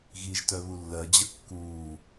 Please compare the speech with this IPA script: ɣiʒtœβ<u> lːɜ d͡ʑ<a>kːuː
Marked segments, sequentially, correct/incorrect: correct, incorrect

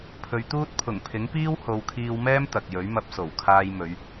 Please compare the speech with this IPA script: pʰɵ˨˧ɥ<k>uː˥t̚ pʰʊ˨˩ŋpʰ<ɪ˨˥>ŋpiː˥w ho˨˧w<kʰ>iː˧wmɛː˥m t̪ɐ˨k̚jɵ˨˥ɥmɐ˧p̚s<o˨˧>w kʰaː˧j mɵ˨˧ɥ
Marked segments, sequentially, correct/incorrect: incorrect, correct, correct, incorrect

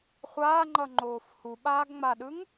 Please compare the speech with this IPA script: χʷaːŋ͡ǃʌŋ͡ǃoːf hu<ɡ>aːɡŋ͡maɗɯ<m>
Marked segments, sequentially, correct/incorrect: incorrect, incorrect

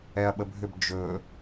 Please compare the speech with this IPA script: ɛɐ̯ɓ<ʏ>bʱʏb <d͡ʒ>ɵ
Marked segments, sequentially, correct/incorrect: incorrect, correct

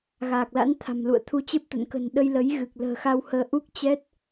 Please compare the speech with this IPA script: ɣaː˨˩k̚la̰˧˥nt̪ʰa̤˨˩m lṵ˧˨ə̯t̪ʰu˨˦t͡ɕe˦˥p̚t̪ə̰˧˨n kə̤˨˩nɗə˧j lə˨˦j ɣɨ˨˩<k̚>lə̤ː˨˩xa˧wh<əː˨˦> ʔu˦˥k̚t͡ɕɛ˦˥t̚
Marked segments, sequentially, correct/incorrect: correct, correct

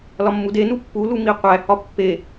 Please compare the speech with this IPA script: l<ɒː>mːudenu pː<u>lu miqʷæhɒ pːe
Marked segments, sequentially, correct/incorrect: incorrect, correct

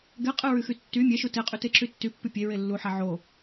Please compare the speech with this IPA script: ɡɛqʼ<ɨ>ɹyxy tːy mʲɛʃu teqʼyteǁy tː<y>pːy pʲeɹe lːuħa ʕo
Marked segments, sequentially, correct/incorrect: correct, correct

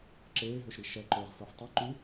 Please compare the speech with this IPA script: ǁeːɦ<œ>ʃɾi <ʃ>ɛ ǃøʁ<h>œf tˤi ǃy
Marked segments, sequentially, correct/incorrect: incorrect, correct, incorrect

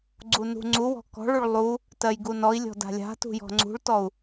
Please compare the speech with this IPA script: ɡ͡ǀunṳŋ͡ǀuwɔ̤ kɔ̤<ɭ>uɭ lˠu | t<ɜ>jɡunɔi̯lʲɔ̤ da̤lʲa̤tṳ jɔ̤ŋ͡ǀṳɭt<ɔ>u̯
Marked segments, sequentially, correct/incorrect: correct, correct, correct

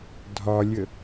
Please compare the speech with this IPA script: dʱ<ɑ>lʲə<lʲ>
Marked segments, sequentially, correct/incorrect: incorrect, incorrect

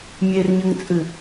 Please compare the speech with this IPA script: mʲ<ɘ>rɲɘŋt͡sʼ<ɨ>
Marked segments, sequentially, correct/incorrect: incorrect, correct

